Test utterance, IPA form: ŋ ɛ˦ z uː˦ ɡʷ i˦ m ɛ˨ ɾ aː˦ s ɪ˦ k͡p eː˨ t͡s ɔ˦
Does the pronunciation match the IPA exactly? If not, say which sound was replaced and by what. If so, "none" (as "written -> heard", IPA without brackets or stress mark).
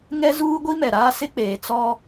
none